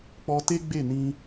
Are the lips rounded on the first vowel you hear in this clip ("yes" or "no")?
yes